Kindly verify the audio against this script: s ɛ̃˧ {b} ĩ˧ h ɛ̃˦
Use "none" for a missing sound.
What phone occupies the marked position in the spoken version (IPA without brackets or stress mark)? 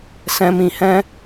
m